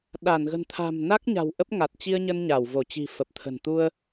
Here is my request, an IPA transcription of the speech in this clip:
ɗa˧˩nɣə̤˨˩nt̪ʰa̤˨˩m na˦˥k̚ɲa̤˨˩w ʔə˦˥p̚ ŋa˨˩t̚t͡ɕi˧ə̯ ɲə˧nɲa˧˩wvo˧˩t͡ɕi̤˨˩ fə˨˩p̚t̪ʰə̤˨˩nt̪u˧ə̯

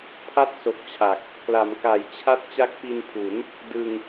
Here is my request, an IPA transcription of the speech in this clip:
pʰa˥˩t̚so˨˩k̚ t͡ɕʰa˨˩k̚ | kla˩˦mka˩˦jt͡ɕʰa˥˩t̚ t͡ɕa˦˥k̚pi˧npʰu˩˦n | dɯ˧ŋ

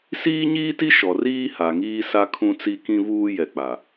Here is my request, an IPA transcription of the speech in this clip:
siː˦ɲiː˦ti˦ ʃɔ˨riː˦ha˨ŋiː˦ sa˦kʰũ˦t͡si˦ kĩ˦vuː˦jɛ˨ k͡pa˨

